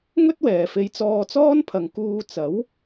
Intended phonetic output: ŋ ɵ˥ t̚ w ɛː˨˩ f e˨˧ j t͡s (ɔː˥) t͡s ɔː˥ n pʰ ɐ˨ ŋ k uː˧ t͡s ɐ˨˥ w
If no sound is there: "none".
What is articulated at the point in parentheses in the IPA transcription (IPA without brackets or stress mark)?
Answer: ɔː˧